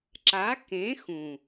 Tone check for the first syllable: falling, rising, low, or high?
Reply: rising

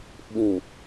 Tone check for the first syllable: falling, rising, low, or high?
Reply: low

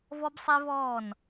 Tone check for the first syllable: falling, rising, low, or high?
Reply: high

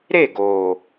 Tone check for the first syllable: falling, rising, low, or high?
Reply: falling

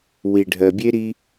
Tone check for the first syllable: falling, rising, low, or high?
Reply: low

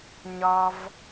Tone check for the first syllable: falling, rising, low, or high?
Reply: low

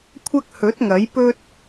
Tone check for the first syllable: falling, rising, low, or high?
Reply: high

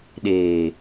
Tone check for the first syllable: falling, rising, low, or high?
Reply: low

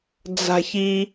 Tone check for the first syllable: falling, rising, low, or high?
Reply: high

